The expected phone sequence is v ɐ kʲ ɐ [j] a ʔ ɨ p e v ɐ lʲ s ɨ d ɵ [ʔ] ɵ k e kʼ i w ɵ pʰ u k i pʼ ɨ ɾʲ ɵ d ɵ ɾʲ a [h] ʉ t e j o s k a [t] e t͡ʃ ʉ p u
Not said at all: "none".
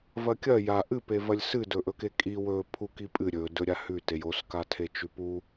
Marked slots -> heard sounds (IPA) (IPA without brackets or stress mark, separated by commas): j, ʔ, h, tʰ